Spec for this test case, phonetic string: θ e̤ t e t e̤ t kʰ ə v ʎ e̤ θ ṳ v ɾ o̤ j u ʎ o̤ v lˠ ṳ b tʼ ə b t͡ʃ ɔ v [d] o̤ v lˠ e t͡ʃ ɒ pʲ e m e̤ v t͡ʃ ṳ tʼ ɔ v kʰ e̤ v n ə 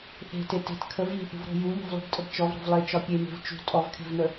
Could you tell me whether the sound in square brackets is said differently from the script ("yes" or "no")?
yes